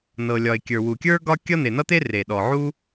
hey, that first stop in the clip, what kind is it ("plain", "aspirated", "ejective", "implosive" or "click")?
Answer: plain